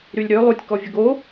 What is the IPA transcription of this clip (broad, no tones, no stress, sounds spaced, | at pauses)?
ɾ y lʲ ɾ ø lˠ u tʲ k ɔ vʲ ə ɡ o